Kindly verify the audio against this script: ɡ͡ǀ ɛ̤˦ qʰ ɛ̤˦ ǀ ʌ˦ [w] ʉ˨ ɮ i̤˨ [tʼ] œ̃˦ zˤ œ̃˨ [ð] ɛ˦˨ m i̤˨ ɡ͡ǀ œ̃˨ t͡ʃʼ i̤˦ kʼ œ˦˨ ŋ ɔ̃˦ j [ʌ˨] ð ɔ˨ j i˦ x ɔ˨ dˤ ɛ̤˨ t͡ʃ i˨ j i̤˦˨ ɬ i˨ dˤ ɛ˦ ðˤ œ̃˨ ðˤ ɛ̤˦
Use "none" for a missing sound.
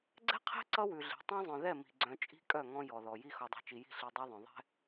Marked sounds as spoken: w, tˤ, ð, ɔ˨

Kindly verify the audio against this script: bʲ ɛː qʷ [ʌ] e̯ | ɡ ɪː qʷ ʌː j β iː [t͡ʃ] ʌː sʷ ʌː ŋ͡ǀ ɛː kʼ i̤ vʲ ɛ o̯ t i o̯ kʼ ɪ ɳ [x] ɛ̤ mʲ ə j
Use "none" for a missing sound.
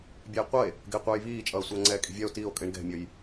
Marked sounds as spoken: ʌ, t͡ʃʼ, ɡ

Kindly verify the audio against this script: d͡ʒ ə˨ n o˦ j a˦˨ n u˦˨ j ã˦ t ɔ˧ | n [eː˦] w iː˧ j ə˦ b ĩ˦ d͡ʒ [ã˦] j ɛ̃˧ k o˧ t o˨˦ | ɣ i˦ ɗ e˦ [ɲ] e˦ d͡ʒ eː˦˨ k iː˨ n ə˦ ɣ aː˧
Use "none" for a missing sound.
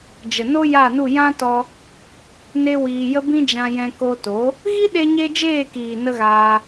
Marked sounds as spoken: e˦, ã˧, ɲ

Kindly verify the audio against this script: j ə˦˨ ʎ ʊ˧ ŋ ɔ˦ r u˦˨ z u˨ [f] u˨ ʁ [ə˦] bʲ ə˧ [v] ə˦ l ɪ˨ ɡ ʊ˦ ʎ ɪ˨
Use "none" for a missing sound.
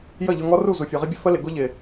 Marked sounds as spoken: fʲ, ɪ˦, f

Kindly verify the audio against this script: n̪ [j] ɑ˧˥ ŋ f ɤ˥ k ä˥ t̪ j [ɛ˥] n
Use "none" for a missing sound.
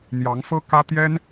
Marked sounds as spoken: j, ɛ˥

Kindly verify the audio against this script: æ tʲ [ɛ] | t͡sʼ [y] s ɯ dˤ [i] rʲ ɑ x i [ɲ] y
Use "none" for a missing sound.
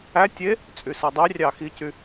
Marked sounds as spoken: e, y, y, c

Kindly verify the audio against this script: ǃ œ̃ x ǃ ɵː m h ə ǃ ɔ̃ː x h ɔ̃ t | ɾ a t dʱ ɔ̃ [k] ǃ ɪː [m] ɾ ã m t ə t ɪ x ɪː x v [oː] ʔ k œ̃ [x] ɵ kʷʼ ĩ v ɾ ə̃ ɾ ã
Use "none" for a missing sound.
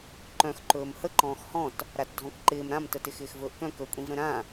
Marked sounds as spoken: k, m, ɵː, k

